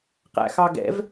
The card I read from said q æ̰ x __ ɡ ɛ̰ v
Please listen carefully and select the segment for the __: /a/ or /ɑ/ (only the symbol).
ɑ